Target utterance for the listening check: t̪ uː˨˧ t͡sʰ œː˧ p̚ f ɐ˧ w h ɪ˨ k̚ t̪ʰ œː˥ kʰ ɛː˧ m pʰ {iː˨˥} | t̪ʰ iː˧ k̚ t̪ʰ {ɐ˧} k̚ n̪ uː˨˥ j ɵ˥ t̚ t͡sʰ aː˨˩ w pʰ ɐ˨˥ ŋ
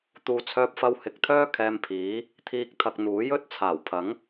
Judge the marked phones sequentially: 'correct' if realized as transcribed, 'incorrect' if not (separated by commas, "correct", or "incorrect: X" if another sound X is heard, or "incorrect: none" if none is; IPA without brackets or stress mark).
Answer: correct, correct